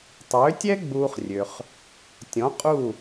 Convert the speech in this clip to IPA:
tˤ øː˩˥ tʲ ɛ˥ ɡ͡b uː˧ χ rʲ ø˩ χ | tʲ ɔ̃˩˥ qʼ u˥˩

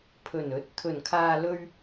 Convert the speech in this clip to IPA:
pʰ ɵ˨˩ n ɵ˨˥ t̚ t̪ʰ ɵ˨˩ n kʰ aː˨ l ɵ˧ ɥ

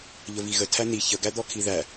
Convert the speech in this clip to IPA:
ʎ ə v i ɣ ə tʰ æ n̪ i ç ə ɡ æ d̪ ɔ kʰ i ð æ

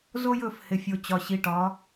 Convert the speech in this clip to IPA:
z o˦ j ɵ˦˨ f h ɪ˨ fʲ o˨ t͡ɕ ɒ˨ ɕ i˨˦ ʈ ɒ˨˦

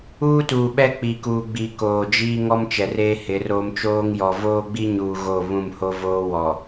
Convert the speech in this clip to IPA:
uː˦ t uː˨ ɓ ɛ˦ k͡p i˨ k uː˨ ɡ͡b i˨ k oː˨ d͡ʒ iː˦ ŋ ɔ˦ m t͡ʃ ɛ˨ r eː˦ h ɪ˨˦ r oː˦ m t͡ʃ oː˦ ŋ j ɔ˨ v oː˦ ɡ͡b i˦ ɲ uː˨ ɣ o˦˨ β ũ˦˨ m h o˦ v oː˦ w ɔ˨

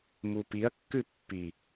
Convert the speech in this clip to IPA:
m u p i ɐ̯ kː ʉ pː i

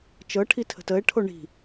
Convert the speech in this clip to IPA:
t͡ʃ ɤ ʈʰ i tʰ ə̤ t ə e̯ ʈʰ o ɳ i̤

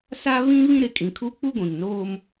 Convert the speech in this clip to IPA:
s a˦ β ĩ˦ β ĩ˦ ɾ ɪ˨ kʼ ĩ˨ kʰ u˦ k͡p u˦ ɡʷ ĩ˨ ŋ n oː˦ m

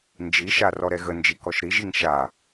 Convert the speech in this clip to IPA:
n d͡ʒ i ʃ a r ɔ ɾ ɛ ɣ ə n d͡ʒ i k ɔ ʃ ɾ i ʒ i ŋ ʃ a

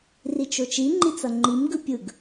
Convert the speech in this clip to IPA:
r i t͡ʃ o t͡ʃ i ŋ͡ǃ i t͡s ʌ ŋ͡ǃ i m ɡ ɯ pʲ ɯ ɡ

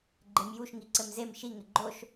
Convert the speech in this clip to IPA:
ɡ͡ǃ e m j u ʃ ŋ i ǀ ɘ m z e m ʃ i ŋ ɘ ɡ͡ǃ o ʃ

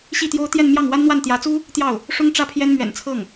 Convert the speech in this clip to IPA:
ɕ i˥˩ t̪ j o˥ ʊ̯ t̪ j ɛ˥˧ n m j ɑ˥˩ ŋ w a˥ n n̪ w a˥˩ n t̪ j ä˧˥ t͡s u˥ | t̪ j ɑ˥˩ ʊ̯ | ʂ ʊ˥ ŋ ʈ͡ʂ ä˥ pʰ j ɛ˥ n m ɥ ɛ̰˨˩ n t͡sʰ ɤ˥˩ ŋ

